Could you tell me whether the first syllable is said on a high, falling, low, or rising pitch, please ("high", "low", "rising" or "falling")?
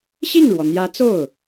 falling